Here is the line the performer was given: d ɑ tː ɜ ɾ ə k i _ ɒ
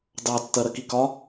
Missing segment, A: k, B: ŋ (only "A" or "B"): A